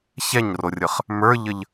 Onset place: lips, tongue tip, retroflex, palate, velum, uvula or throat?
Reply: palate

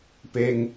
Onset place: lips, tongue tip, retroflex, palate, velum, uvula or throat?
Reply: lips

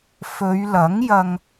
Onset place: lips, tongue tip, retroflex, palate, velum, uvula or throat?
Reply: lips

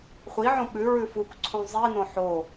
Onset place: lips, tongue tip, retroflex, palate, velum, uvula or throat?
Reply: uvula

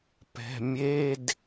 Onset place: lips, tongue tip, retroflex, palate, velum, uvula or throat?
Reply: lips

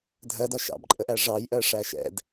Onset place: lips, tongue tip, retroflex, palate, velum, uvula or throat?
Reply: tongue tip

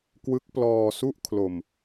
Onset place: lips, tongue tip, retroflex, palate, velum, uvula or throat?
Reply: velum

